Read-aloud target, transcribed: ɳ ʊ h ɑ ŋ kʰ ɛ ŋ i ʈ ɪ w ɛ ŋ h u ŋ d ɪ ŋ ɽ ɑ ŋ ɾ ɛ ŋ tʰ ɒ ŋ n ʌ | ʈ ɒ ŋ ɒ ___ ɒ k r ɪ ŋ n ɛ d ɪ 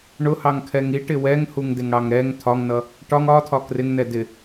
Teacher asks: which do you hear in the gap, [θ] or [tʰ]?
tʰ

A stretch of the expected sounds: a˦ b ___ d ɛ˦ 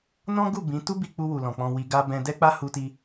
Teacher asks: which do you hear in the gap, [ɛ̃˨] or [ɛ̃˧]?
ɛ̃˧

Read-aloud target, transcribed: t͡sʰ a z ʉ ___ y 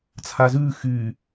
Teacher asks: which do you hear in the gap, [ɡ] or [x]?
x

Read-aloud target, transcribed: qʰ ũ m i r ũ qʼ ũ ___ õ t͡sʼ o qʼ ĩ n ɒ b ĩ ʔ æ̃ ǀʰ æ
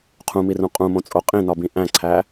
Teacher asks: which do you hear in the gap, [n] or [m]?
m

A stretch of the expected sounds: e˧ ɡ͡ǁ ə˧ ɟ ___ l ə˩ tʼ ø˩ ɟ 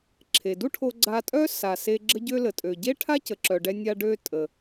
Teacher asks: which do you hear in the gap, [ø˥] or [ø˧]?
ø˧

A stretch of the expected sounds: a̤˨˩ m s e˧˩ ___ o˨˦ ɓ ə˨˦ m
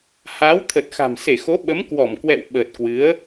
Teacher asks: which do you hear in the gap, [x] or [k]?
x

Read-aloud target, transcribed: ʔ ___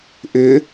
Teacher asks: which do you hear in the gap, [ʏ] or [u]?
ʏ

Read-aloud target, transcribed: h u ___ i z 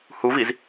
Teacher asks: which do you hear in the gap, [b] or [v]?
v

